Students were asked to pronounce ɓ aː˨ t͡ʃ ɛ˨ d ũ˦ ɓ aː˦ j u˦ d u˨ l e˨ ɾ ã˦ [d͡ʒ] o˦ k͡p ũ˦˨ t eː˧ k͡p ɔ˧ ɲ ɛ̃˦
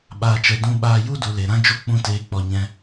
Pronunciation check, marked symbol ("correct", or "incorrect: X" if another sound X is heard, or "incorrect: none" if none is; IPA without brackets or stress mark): correct